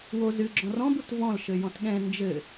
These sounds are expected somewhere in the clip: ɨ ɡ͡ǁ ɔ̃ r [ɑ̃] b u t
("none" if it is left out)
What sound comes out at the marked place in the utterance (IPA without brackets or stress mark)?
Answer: ɔ̃